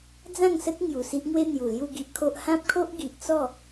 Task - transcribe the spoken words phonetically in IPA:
d͡z ã˥˧ ŋ s ə˦ t̚ ŋ j u˨˩ s i˦ ʔ ŋ w e˦ n̪ j u˨˩ l j u˥˧ ɡ i˦ ʔ kʰ o˦ ʔ h ã˦ p̚ kʰ o˦ ʔ ɡ i˨ ʔ t͡s ɔ˥˧

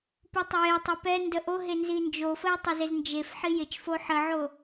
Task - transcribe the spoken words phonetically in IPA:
p u tˤ ə j e tˤ e p ɛ n d ə ʔ o ɦ e n z i n d͡ʒ o f ə j tˤ ɪ z ɪ z n d͡ʒ e f ħ i j ɪ t͡ʃ f o ħ ə ʕ o

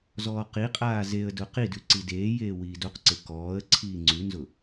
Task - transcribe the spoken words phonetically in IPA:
z ɔː q i qʼ aː z e ə̯ d ʊ q i d ʉ ǀ i d eː j eː w iː d o q ǀ e k ɔː ə̯ ǀʰ iː ŋ͡ǀ ʉ n z ʊ

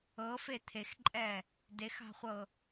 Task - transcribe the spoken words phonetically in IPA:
ɤ f e t̪ʰ e x ǃʼ ɛ | d e x a̤ χʷ ɤ

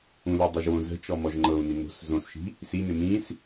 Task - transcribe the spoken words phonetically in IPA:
ũ l i dˤ u ʒ w õ z ə̤ t͡ʃ ɔ m ɔ ʒ ŋ͡ǃ ɤ u̯ n i n o̤ s z õ s ʃ i̤ | s i n ɪ m ĩ s

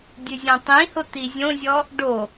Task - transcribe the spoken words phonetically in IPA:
dʲ ɨ zʲ ɔ̃ tˤ ĩ h ʊ t̪ i zʲ õ zʲ ɔ | ɖ o

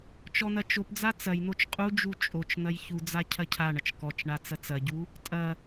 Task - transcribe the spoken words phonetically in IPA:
t͡ʃ ɔ n̪ ɐ t͡ʃ o p d͡z a t͡s ɐ j n̪ o t͡ʃ qʼ u d͡ʒ u t͡ʃʼ o t͡ʃ n̪ ɐ j ç u d͡z a cʰ ɐ cʰ a ɳ ɐ t͡ʃ k ɔ t͡ʃ ɳ a t͡s ɐ t͡s ɐ ɟ u | tʼ ɐ

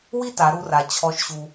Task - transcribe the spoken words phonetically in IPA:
w i˥ t a˩˧ ɾ u˧ r a˩ t͡ɕʰ ɔ˧˥ ʃ ɕ u˧

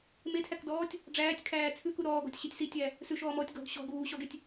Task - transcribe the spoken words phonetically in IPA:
m e tʰ æ k d ɔː tʲ | ɖ͡ʐ æː tʲ kʰ æː t͡sʰ ʉ k u ɾ ɔː ɡ ɔ̤ tʲ ɕ i tʲ s i tʲ æ | s ʉ ʃ ɔː m ɔː tʲ ɡ ɔ̤ ɡ ɕ ɔ̤ ɡ uː ɕ ɔ ɡ e tʲ

